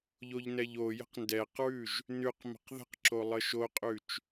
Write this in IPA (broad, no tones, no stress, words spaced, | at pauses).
ʎoʎnɛʎojə̤q ndɛqɹʉʒ | nʉq mə̤qðə̤qǁo lˠəʃoqʼʉt͡ʃ